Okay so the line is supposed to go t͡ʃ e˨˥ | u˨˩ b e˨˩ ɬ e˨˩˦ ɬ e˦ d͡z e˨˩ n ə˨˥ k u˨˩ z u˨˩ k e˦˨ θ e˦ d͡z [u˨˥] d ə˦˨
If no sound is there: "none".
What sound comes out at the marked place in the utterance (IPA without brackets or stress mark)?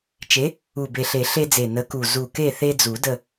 u˨˩˦